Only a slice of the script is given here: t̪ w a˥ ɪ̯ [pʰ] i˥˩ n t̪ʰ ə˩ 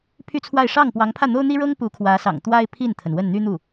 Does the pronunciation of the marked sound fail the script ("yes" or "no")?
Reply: no